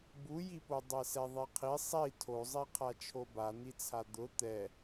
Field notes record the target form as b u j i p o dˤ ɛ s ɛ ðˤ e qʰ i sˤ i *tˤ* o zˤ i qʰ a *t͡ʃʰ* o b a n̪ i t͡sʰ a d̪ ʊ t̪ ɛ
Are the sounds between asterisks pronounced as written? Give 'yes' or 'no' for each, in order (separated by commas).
no, yes